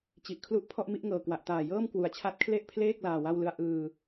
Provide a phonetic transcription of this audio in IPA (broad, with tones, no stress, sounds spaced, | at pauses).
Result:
t͡ɕ i˨˩ ʔ kʰ l u˦˥ ʔ pʰ ɔ˥˩ ʔ m i˥˩ ʔ ŋ ɤː˨˩ k w a˨˩ ʔ t aː˨˩ j ɤː˥˩ m k w u˩˦ a̯ t͡ɕʰ a˦˥ t̚ kʰ l e˥˩ ʔ pʰ l eː˥˩ k̚ l aː˧ w a˥˩ w l ɯ˥˩ a̯ ʔ ɯː˧